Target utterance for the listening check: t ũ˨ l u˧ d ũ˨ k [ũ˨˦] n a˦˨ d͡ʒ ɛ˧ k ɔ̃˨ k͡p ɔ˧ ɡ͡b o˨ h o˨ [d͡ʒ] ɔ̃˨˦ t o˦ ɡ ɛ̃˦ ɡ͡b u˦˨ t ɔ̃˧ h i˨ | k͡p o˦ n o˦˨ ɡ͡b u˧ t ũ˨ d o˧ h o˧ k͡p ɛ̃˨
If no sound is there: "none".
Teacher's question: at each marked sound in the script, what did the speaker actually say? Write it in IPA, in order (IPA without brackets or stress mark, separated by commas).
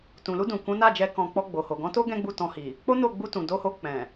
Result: ũ˨˦, ɡ